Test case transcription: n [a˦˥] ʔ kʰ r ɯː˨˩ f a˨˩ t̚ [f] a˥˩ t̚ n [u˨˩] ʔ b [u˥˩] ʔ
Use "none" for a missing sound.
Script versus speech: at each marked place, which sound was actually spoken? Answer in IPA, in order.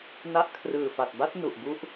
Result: a˦˥, b, u˨˩, u˥˩

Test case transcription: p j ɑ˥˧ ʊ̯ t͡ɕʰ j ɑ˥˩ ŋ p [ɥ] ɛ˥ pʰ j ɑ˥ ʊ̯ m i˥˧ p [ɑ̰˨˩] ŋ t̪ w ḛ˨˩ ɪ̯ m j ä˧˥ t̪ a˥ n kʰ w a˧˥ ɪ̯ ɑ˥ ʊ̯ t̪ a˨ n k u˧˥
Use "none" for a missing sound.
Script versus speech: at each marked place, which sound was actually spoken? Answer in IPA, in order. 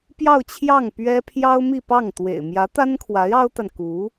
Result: ɥ, ɑ˥˩

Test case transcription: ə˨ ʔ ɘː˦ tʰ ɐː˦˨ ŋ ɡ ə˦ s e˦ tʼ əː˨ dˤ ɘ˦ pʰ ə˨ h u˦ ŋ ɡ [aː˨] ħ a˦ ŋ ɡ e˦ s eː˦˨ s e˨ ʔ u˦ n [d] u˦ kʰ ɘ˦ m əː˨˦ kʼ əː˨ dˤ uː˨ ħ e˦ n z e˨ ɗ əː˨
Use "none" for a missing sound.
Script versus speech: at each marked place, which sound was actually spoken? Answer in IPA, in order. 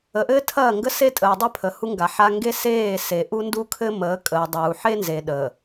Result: a˨, d

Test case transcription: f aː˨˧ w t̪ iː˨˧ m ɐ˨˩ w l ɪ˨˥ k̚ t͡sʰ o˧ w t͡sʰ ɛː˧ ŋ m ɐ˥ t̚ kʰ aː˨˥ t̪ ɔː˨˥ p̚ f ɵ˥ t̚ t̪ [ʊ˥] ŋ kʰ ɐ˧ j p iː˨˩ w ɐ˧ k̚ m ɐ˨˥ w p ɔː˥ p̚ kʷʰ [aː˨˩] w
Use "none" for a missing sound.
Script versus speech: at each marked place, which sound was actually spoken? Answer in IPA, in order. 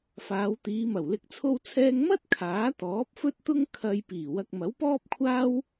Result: ʊ˥, aː˥

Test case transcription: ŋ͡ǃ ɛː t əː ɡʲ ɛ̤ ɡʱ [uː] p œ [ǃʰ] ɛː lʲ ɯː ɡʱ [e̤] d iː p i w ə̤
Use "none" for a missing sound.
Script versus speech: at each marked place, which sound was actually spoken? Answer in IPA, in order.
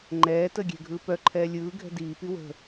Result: ɯː, ǃʰ, ɛ̤

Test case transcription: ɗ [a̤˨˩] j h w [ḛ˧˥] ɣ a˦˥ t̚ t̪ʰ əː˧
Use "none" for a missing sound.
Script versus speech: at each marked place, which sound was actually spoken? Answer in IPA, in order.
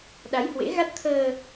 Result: a˨˦, ḛ˧˥

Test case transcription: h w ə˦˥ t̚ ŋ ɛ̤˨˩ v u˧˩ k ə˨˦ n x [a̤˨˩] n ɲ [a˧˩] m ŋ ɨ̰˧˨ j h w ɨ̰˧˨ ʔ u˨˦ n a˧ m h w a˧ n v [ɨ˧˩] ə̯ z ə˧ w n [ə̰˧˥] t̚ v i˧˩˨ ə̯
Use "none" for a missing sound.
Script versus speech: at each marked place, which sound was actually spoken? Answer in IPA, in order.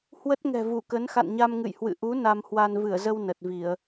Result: a̰˧˨, a˧, ɨ˧˩, ə˨˩

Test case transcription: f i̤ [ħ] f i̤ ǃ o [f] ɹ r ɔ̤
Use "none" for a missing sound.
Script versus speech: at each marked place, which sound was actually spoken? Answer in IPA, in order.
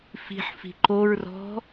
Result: ħ, none

